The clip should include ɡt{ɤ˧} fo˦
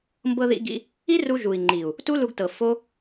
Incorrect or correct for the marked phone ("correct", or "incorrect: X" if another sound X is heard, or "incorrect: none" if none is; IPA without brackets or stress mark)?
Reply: incorrect: ɤ˨